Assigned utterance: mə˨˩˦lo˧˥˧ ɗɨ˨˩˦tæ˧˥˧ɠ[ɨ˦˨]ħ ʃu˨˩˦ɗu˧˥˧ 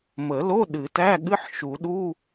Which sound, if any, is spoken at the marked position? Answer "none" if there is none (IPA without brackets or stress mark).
ɨ˧˥˧